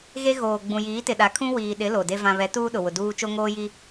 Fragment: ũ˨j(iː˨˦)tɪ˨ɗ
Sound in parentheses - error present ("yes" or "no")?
no